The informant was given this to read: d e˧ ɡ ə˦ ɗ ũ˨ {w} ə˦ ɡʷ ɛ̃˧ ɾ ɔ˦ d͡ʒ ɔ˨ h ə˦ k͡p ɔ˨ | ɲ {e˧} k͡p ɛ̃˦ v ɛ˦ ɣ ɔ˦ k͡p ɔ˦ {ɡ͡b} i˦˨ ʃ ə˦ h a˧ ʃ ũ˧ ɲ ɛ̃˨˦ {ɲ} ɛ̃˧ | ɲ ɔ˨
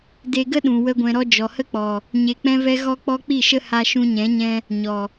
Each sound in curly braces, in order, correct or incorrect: correct, correct, incorrect: k͡p, correct

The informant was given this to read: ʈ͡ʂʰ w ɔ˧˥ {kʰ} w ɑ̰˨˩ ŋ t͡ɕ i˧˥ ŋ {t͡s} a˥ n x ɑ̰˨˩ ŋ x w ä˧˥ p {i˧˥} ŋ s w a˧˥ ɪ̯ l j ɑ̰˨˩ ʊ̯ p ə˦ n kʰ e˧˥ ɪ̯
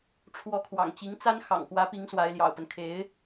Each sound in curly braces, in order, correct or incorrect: correct, correct, correct

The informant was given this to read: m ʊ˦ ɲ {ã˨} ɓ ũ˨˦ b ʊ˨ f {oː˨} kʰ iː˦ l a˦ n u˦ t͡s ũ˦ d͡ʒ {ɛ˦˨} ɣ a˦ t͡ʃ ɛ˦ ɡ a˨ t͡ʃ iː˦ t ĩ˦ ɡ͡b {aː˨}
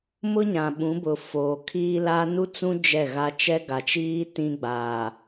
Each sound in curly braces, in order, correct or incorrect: correct, correct, correct, correct

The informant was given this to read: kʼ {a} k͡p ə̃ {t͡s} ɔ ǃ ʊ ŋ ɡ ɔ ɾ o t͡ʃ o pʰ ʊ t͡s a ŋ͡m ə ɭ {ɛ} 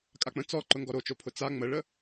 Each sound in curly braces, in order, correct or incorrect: correct, correct, incorrect: ə

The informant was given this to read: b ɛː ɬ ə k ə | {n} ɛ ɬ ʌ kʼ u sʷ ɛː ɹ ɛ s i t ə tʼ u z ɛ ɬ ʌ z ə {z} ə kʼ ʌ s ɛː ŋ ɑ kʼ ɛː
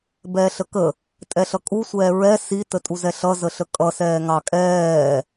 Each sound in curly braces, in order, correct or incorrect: incorrect: tʼ, incorrect: ɬ

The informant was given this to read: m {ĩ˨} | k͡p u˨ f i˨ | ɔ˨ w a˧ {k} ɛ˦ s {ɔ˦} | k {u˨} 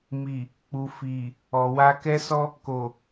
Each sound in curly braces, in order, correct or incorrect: incorrect: i˨, correct, correct, incorrect: o˨

